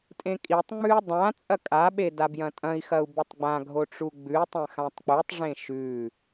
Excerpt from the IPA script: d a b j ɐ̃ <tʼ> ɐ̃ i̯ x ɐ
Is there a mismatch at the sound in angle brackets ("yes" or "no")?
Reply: no